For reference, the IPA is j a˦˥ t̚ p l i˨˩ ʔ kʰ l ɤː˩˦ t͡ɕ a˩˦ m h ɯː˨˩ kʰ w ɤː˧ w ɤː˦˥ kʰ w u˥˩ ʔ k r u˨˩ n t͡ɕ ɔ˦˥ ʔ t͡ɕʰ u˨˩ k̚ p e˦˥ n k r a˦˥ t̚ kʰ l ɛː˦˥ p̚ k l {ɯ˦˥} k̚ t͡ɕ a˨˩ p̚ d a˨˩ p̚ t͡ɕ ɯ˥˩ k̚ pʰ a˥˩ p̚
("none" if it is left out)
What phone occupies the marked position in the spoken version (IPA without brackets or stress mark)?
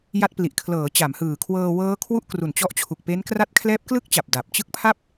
ɯ˥˩